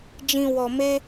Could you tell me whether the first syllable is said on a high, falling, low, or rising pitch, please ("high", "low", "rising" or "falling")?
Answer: low